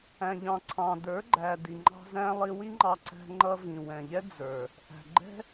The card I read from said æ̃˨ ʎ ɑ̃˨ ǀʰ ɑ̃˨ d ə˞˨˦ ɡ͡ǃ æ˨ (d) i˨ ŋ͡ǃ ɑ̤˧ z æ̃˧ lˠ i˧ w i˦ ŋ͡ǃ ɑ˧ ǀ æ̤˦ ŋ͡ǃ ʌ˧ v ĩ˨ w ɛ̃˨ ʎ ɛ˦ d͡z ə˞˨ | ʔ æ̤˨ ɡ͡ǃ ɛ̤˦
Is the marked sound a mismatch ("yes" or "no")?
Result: no